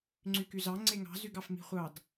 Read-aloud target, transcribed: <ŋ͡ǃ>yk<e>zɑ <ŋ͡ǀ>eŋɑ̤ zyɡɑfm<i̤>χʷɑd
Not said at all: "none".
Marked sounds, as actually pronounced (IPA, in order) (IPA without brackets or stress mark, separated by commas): ŋ͡ǀ, y, ŋ͡ǀ, i̤